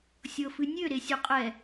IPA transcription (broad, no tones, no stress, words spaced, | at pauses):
sʲɤfɨnʲø ɾesʲuqʼɛ